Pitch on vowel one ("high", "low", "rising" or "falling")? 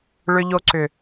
high